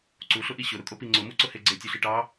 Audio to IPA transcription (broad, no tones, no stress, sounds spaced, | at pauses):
ǀ u ɬ ʊ ʔ i ɕ ʊ ɾ ʊ kʼ o p i ŋ͡ǀ ʊ m u ǀ ʊ h e ɡ͡ǀ e tʲ u ɬ i ʈ ɑ